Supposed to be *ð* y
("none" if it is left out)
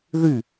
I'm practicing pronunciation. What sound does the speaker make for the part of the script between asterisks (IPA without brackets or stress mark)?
ð